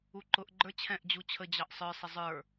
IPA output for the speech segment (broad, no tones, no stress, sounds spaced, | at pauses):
u ǃ ʊ ʔ ɡ͡ǃ ə˞ t͡ɕʰ ɛ̃ ʔ d͡ʑ u t͡ɕʰ ə d͡ʑ ɑ ʔ sˤ ə˞ sˤ ɪ zˤ ə˞